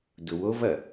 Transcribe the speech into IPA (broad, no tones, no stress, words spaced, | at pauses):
dʊwovɐ